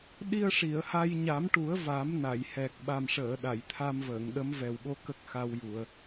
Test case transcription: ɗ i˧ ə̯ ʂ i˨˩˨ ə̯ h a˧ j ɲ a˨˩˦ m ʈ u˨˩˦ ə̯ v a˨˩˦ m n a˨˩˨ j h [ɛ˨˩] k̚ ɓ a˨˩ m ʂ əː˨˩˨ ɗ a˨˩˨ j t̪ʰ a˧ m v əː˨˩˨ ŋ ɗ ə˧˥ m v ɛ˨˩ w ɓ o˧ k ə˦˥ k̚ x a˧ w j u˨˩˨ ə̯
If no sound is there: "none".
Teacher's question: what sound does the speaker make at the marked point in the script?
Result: ɛ˨˩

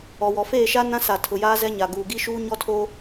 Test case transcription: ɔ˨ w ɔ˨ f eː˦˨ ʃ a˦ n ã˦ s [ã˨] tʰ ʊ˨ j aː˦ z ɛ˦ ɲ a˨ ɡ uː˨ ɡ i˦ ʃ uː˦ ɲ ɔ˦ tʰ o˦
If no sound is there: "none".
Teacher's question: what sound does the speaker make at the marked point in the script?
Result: a˨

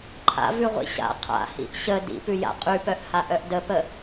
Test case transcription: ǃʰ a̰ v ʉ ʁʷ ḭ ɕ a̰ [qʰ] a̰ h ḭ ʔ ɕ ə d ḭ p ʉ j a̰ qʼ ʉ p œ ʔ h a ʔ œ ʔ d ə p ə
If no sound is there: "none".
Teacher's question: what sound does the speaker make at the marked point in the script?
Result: qʰ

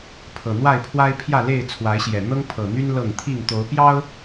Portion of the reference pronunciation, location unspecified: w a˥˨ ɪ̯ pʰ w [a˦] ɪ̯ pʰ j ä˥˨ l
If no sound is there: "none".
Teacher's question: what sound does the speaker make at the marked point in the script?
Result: a˦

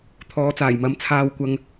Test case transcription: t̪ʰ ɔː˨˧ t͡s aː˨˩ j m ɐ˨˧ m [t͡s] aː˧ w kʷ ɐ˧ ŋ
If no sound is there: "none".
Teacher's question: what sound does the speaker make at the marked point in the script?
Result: t͡sʰ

